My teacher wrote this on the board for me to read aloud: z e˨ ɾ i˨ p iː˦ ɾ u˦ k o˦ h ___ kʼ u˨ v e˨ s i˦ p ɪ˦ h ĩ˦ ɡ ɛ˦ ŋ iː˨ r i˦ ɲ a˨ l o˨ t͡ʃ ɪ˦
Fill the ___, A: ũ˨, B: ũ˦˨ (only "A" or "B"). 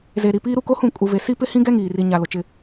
B